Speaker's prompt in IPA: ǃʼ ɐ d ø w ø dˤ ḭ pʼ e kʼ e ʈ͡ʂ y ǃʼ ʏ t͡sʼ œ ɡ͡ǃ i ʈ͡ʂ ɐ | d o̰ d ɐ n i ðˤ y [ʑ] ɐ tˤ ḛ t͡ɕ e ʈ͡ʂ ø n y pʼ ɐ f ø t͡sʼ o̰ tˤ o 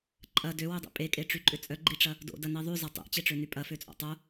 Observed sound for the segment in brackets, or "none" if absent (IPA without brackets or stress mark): z